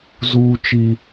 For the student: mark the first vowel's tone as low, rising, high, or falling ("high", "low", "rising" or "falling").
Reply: high